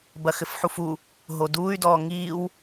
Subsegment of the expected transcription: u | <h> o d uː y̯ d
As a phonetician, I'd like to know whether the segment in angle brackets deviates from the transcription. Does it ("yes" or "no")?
yes